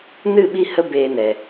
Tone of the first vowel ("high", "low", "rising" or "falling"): falling